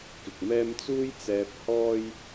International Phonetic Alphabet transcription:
kɪ˨k̚mɛː˥m t͡suː˥jt͡sɛː˧p̚hɔː˥j

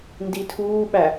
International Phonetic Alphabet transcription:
nditʰuːɓæ

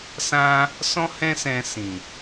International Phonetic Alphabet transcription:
sã˦ | sɔ̃˦hɛ̃˦sɛ̃˧ sĩ˨

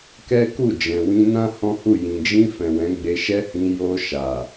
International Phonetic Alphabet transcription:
kɛ˦ku˦˨ d͡ʒɛ̃˨wĩ˧nã˦ hɔ̃˦hu˦˨ jĩ˨d͡ʒĩ˧fɛ̃˨ wɛ̃˨˦ɡ͡be˧ʃɛ˦hĩ˧ jo˧ʃa˨

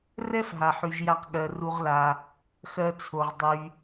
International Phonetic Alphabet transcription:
rɛ˥fɦa˩ħy˩ʒja˨q ɠɜ˩ru˨ʁla˩ | xɜ˨t͡sʰo˩ʁ dˤy˩

